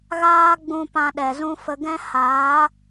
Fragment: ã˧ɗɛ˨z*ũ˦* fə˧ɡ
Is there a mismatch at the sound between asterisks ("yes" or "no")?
no